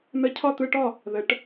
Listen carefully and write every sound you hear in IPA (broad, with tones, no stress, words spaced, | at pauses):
nə˧˥˧cʰɒ˥˨t̪ɯ˧˥˧ʈɒ˥˨ | ðə˩˧ʈ